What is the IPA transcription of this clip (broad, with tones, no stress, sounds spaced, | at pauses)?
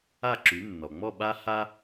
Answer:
a˥˩ ǁ y˩˥ nː ɔ˩ ŋ͡m ɔ˥˩ ɓ a˥ h a˥